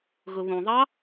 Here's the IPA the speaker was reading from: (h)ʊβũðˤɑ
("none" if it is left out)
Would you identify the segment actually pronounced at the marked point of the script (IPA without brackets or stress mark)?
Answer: ɣ